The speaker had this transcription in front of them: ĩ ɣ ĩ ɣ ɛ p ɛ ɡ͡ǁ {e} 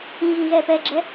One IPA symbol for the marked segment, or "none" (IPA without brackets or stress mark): ɛ